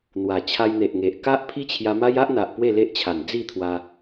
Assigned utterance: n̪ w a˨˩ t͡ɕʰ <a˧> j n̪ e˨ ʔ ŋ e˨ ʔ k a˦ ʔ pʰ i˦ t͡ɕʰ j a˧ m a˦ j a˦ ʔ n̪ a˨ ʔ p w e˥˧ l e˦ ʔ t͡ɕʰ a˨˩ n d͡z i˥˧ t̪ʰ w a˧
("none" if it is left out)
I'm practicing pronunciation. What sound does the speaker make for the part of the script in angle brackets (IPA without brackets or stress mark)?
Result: a˧